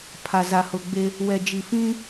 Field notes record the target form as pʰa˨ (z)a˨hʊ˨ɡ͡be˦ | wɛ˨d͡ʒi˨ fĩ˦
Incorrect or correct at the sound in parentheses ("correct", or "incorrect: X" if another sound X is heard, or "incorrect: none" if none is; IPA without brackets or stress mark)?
correct